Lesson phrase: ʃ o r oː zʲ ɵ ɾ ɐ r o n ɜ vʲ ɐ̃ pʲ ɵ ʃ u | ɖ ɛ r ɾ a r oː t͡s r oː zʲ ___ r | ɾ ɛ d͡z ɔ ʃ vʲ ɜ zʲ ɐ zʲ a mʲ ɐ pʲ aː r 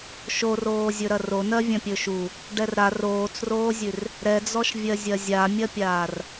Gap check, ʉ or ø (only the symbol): ʉ